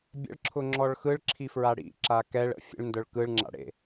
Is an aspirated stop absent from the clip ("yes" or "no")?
no